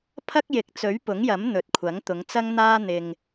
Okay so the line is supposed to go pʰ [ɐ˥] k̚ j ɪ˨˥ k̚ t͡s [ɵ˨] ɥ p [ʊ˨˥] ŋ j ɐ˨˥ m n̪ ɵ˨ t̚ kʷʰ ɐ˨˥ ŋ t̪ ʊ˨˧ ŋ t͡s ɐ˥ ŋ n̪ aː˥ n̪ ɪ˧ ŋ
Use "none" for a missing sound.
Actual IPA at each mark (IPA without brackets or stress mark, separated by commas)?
ɐ˥, ɵ˨˥, ʊ˨˥